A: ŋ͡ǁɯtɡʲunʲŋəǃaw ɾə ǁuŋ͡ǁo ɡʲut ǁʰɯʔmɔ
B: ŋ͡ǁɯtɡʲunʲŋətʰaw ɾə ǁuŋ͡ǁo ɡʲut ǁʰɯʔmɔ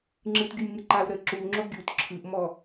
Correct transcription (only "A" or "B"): A